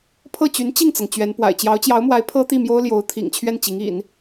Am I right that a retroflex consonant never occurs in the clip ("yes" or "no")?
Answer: yes